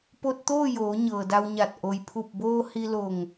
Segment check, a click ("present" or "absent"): absent